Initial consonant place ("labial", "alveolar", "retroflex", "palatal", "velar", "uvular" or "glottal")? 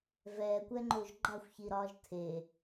labial